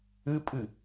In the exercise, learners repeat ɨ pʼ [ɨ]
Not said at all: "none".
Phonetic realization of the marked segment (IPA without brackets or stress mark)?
ɨ